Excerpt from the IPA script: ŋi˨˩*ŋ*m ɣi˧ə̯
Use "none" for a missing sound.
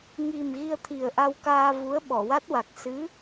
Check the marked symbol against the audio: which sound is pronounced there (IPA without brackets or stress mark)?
none